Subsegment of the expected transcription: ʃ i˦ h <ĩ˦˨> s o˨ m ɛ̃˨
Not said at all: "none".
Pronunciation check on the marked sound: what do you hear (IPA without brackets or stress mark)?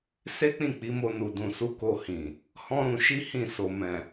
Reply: ĩ˦˨